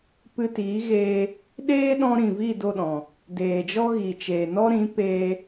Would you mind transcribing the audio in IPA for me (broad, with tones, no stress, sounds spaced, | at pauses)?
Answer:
p ɨ˧ t iː˨˦ ɣ eː˧ | ɗ eː˦ ɗ ɔ̃˧ ɾ ĩ˨ v i˦˨ d o˦˨ ɗ ɔ̃˨ | d eː˨ d͡ʒ ɔ˦ ɣ i˨ t͡ʃ eː˨ n ɔ˦ ɾ ĩ˨˦ p eː˧